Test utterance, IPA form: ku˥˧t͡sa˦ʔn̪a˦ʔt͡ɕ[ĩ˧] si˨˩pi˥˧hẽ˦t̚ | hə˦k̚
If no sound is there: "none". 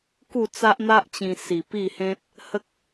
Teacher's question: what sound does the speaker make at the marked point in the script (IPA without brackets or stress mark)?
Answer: ĩ˧